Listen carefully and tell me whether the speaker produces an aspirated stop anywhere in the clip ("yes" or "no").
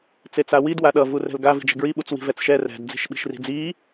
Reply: no